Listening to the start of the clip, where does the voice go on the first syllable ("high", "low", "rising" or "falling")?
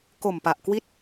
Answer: low